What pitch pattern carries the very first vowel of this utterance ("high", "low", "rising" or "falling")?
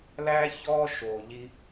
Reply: high